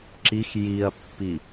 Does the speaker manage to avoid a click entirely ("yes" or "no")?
no